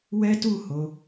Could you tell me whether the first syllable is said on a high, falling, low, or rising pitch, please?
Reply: high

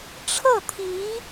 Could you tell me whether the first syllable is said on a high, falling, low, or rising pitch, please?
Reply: falling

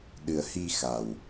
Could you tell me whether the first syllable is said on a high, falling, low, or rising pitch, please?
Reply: low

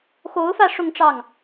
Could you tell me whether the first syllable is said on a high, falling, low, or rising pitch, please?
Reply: rising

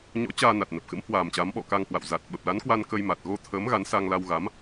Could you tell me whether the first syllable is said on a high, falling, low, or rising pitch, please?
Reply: rising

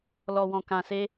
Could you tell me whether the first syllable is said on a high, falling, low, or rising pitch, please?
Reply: low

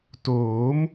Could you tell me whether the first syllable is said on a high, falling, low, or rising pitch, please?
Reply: rising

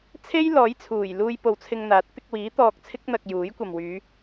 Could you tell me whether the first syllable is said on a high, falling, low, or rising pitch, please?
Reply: high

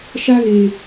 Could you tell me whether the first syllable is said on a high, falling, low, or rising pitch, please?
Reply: high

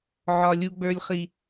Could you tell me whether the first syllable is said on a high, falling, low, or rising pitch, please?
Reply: low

